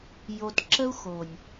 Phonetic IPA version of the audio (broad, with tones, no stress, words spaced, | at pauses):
jo˨tǁə˦u̯xo˨nʲ